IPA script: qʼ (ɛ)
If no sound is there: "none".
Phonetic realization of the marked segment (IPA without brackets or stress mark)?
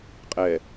ɛ